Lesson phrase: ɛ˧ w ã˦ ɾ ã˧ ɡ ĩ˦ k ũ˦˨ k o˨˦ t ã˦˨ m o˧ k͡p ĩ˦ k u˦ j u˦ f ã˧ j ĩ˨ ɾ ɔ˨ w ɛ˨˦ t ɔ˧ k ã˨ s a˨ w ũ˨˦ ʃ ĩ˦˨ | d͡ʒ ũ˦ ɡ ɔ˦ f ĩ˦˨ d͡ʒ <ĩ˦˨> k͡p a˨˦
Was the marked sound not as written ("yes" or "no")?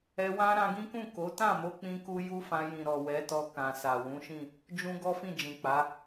yes